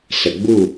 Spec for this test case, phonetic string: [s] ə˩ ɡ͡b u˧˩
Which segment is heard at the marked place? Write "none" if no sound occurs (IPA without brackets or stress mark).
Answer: s